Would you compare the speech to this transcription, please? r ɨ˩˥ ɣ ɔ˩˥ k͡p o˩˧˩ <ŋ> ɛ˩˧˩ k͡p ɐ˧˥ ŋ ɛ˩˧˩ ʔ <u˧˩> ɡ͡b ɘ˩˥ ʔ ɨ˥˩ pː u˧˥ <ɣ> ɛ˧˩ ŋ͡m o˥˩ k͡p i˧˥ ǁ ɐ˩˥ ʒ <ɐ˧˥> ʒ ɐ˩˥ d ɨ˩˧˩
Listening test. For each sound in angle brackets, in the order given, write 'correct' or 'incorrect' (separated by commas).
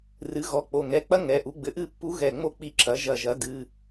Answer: correct, incorrect, correct, incorrect